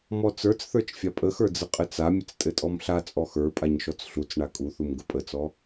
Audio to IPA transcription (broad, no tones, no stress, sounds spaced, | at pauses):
m ɔ t͡s ə˞ t͡s θ ə˞ t͡ʃ fʲ a pʼ ə x ə˞ d͡z ə qʼ ɘ t͡s a mʲ ə t͡s tʼ ɘ tʼ ɔ m ɬ a t͡sʼ ɔ x ə˞ pʼ a ɲ ʃ ɔ t͡s ɬ u t͡s ɳ a kʼ u θ u m ɡ ə pʼ ə t͡s ɔ